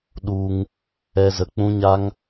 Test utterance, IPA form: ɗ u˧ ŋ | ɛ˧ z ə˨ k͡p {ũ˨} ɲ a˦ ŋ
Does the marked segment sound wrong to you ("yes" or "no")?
yes